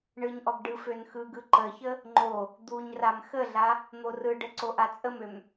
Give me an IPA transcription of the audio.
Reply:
ɳɯɲʔɔɡ ɖɯfønxɯɡɯ ǃəçə | ŋ͡ǃo | d̪uɲram xəɮa | n̪orɯɖə ǀoʔat͡sʼəmøm

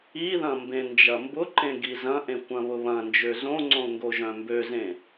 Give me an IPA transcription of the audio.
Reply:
iðɐ̃ mbẽnd͡ʒɐmbʊǃẽ ɡizɐ̃ʔẽ kʷɐ̃βʊβɐ̃nd͡ʒø zõŋ͡ǀõ ŋɡoʒœ̃mbøzẽ

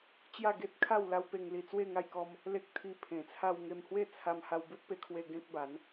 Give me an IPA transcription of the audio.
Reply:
t͡ɕja˥˧ɡe˦t̚kʰa˥˧wla˦w pe˧ŋli˧t͡swe˥˧ ŋa˥˧jkɔ˦m | le˦k̚t̪ʰi˧ pʰẽ˨˩t͡sʰa˧w ŋe˧mhwe˥˧t͡sʰa˧m ha˧wbu˦t̚pe˧kʰwe˧ ɡẽ˦k̚ba˨˦n

